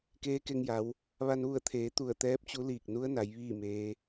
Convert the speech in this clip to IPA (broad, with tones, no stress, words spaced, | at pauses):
keː˧˥ke˧ŋ ja˩˧w | ʋa˧nʋu˧˩ə̯t̪ʰeː˩˧ t̪u˧˩ə̯t̪ɛː˧˥p̚t͡ɕu˧˥liː˧˩k̚ nu˧˥ə̯na˩˧j ʋiː˥˨ meː˧˥